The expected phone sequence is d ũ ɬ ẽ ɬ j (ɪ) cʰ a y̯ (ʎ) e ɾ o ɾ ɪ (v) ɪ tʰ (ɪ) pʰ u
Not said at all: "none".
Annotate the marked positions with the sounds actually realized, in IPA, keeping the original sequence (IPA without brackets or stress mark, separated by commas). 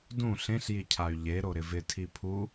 i, ʎ, v, i